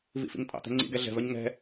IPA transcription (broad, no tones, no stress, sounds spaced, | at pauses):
v ḭ f ḭ ŋ tʼ ɑ̰ t̪ ɛ̤ ŋ͡ǀ ḭ ɡ ɛ ɮ ɛ̤ v œ ɲ ŋ ɛ̤